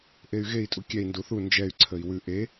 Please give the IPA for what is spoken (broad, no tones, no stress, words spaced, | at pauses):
ʔey̯ɣei̯ tʼukʲɛi̯ nduθu nd͡ʒɛy̯ǀʰəi̯ wʉ ʔe